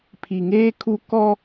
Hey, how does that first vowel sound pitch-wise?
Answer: low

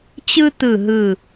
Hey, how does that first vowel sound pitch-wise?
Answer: high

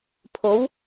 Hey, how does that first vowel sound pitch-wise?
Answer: rising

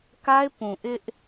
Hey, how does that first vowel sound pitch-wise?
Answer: high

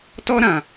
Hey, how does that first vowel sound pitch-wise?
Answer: high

